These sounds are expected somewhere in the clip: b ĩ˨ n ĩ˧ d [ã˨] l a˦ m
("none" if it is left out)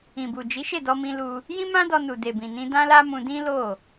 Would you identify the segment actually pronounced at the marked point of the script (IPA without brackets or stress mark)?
ã˦